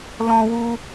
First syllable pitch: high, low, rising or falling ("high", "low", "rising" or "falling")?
high